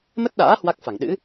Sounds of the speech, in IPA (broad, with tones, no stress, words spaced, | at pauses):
mə˦˥t̚ɗa̰ː˧˥ hwa˦˥k̚fa˧˩ŋ ɗɨ̰˧˥